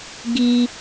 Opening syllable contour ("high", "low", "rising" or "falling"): low